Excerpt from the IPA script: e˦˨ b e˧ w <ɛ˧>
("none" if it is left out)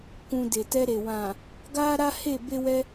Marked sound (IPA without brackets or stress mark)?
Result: ɛ˧